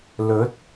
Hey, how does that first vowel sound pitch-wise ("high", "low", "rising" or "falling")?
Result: rising